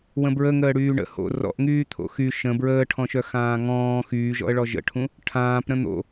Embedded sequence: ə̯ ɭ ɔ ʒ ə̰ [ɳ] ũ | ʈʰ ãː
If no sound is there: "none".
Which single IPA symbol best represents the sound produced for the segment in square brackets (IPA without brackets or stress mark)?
ʈʰ